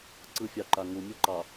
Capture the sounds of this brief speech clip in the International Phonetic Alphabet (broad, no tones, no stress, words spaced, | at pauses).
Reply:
ǀɯfʲɑǃa ŋumʲɯǃɑ